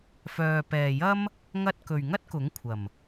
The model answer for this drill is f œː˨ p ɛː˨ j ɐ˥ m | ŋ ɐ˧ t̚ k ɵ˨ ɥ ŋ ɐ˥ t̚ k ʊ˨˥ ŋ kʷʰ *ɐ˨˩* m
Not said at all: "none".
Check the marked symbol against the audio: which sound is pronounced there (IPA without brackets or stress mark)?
ɐ˨˩